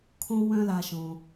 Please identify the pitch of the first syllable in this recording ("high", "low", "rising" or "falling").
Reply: high